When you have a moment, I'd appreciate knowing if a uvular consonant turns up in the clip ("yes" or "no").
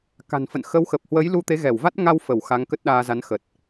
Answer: no